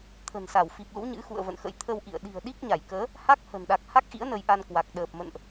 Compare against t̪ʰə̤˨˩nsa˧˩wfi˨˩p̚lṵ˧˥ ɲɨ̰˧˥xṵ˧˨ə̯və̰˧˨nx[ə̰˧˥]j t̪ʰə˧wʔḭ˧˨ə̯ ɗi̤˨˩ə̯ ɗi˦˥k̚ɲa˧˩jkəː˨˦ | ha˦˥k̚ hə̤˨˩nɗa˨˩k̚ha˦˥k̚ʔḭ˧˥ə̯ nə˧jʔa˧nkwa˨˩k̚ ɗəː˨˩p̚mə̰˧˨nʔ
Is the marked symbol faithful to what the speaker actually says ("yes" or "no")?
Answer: yes